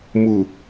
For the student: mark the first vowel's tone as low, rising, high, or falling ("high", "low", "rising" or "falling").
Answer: low